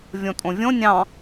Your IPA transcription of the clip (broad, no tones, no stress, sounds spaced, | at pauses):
vʲ õ tʼ õ vʲ õ nʲ ɑ̃